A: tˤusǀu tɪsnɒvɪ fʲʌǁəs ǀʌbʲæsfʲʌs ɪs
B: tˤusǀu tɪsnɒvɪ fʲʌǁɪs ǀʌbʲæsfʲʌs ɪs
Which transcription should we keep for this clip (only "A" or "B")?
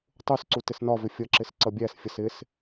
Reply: B